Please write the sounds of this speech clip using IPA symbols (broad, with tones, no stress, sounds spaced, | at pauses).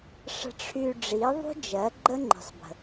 ʂ ə̤˧ ʈ͡ʂʰ y˧ ɖ͡ʐ i˨˦ ðˤ ṳ˦ d͡ʒ ɜ˨˦ ɡ͡ǃ ə˦ ŋ͡ǃ i̤˨ sˤ b ə̤˨